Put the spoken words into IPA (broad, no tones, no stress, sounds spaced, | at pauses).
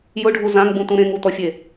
j ʊ ɖʱ u z ã ŋ ɡ͡b ũ t̪ ũ ɾ ẽ ŋ u t̪ ɔ fʲ e